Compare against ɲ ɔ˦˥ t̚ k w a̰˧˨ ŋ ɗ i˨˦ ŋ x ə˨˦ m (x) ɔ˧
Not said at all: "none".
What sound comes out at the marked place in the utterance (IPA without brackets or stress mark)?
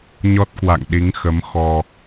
x